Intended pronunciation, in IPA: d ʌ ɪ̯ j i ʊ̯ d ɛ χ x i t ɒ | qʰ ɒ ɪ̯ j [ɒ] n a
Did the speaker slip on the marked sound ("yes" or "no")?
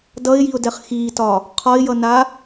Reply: yes